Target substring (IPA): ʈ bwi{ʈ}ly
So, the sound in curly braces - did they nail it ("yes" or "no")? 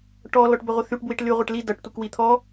yes